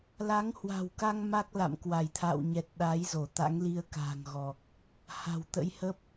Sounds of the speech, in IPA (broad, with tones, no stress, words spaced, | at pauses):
la˨˦ŋhwa̤˨˩wka˧ŋ ma˦˥k̚la̰˧˨m kwa˧˩jt̪ʰa̰ː˧˨wɲɛ˨˩t̚ ɗa˨˦jzo˧˩ t̪a̰˧˥ŋli˧ə̯ka̤ː˨˩ŋɣɔ˨˩k̚ | ha̤˨˩wt̪ə̰˧˥jhə˦˥p̚